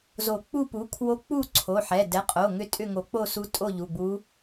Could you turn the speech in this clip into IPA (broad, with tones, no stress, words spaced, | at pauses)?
zo˨˩˦k͡pu˥˨ pu˩˥kʰwo˧˥k͡pu˥˨ ǀʰo˩˧˩ħɛ˩˧˩ dɛ˩˥qʼo˩˧˩ ŋʏ˥˨tʼʏ˥˨ ŋo˨˩˦k͡po˥˨su˧˥tʼo˥˨ ʎu˩˧˩ɡ͡bu˧˥